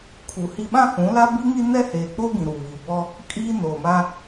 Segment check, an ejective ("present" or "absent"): present